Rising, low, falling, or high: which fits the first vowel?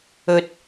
low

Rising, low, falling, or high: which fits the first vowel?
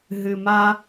low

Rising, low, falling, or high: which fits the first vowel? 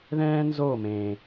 high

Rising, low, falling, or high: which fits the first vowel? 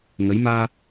rising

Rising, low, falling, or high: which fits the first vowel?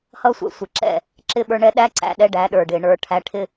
high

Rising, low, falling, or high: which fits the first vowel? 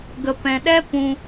low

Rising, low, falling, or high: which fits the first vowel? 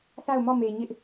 falling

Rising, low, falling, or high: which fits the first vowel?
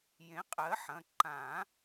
rising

